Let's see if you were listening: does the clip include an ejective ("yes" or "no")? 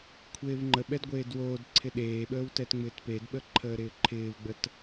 no